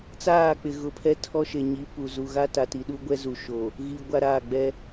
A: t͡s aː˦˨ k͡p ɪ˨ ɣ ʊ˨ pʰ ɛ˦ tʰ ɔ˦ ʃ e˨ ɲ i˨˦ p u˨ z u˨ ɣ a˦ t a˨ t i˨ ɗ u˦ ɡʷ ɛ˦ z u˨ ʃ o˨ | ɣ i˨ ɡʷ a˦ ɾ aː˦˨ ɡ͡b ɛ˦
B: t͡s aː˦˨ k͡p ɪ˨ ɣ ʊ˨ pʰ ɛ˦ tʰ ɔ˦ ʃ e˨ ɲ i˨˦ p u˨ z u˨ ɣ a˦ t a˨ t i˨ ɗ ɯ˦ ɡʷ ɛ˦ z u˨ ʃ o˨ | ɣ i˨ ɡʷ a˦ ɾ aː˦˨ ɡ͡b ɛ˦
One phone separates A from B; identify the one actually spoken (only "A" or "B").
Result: A